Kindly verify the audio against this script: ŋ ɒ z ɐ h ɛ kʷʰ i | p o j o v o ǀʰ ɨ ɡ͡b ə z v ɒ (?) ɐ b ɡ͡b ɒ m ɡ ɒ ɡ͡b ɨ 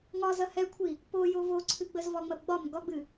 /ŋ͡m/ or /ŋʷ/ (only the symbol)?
ŋ͡m